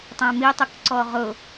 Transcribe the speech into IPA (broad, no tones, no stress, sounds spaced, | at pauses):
tˤ æ̃ m i tˤ ʊ k ǀ ɔ ʁ ʊ